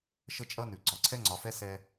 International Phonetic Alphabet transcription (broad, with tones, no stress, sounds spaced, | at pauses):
ʃ ə˦ t͡ʃʼ ʌ˦ n ʉ˨ ɡ͡ǀ ɒ˨ ǀʰ ɛ˦ ŋ͡ǀ ɒ˨ f ɛ˦ s ɛ˦